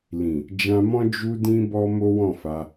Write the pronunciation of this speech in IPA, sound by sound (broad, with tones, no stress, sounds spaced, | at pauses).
l ĩ˨ | d͡ʒ ã˧ m ɔ̃˦ d͡ʒ u˧ d ĩ˧ b ɔ˧ m o˦ w ɔ̃˦˨ f a˧